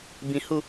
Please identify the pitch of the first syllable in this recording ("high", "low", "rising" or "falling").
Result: low